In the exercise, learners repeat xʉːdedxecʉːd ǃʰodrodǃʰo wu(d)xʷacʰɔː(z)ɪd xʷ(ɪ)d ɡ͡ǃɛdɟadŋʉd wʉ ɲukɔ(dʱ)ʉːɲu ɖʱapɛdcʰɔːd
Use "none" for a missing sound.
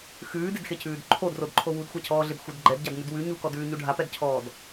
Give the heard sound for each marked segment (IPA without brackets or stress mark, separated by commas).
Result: d, ɮ, ɪ, d